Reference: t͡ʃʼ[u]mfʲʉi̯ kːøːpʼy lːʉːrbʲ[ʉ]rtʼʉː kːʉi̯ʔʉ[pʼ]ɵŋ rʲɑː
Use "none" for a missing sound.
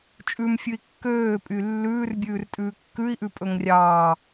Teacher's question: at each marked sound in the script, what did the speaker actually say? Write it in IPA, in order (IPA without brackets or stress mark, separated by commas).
ʉ, ʉː, pʼ